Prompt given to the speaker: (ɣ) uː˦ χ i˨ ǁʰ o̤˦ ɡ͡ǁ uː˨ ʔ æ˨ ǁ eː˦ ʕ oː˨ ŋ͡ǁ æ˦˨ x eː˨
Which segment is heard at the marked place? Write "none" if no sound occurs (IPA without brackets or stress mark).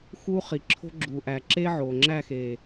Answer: x